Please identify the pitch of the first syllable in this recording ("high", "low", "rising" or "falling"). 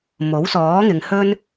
rising